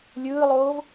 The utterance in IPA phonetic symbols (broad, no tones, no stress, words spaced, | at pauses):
lʲɯːlˠoːv